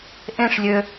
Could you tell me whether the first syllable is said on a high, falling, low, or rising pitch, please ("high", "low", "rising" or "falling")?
falling